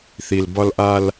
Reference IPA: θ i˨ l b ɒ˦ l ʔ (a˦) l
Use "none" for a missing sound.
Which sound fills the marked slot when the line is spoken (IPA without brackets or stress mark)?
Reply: a˦